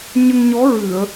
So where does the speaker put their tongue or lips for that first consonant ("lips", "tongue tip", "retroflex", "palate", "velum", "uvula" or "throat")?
palate